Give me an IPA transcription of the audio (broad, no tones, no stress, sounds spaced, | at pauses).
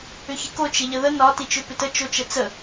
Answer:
ʏ ç ɪ k o t͡ʃ ɪ ʎ ə ð ə n ɒ t i t͡ʃ ʏ p ɪ t ə t͡ʃ o t͡ʃ ə t͡s ə